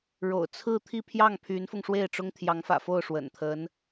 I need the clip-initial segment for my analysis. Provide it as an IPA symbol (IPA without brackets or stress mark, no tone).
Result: ɻ